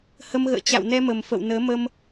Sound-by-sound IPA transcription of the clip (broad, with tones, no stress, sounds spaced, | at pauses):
h ə˧ m ɣ ə̰ː˧˨ t͡ɕ a̰˧˨ w n ɛ˧ m ə˨˩ m f ə̰˧˨ w n əː˨˦ m ə˧ m